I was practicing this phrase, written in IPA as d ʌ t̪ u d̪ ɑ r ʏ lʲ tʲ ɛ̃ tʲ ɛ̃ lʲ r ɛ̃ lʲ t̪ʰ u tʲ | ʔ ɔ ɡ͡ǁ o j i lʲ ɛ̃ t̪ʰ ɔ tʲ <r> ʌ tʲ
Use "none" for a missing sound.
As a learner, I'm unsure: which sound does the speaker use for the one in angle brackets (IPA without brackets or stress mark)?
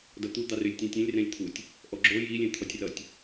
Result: r